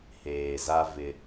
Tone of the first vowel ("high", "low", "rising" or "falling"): low